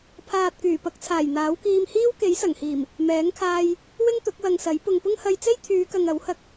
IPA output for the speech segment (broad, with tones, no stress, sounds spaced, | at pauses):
pʰ aː˨ t̚ k yː˨˩ p ɐ˧ k̚ t͡sʰ aː˨˩ j n̪ aː˨˥ w k iː˧ m h iː˥ w k e˨˥ j s ɐ˨˩ ŋ h iː˨˩ m | m ɛː˨˥ ŋ kʰ aː˧ j | w ɪ˥ ŋ t̪ ʊ˨˥ k̚ w ɐ˨ ŋ s ɐ˨˥ j p ʊ˨ ŋ p ʊ˥ ŋ h ɐ˧ j t͡s e˥ j t̪ʰ yː˨˧ k ɐ˨ ŋ ɐ˨˥ w h ɐ˧ k̚